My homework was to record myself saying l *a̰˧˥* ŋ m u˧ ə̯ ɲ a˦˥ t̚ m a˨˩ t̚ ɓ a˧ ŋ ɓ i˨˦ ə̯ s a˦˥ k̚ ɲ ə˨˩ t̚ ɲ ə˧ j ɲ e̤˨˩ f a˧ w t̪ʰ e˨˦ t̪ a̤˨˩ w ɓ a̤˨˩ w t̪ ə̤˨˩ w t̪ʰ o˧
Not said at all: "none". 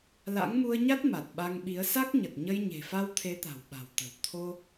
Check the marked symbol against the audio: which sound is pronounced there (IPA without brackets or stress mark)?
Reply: a̰˧˥